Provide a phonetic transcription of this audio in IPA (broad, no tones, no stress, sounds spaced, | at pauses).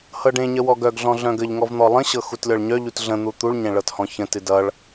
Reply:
h ɤ ɖ ẽ ɲ ə w ɔ ɡ œ ɡ ɮ ɔ̃ ɮ œ̃ ɡ ə ʎ ŋ ɔ v n̪ ɔ lˠ ə̃ ɕ ɤ x u t lʲ ɔ ɭ ɲ œ ʎ u t ɮ ə̃ n̪ u t̪ u ɭ ɲ ɛ̃ ɭ ɤ t h ɔ̃ ç ə̃ t ɨ d ʌ ɭ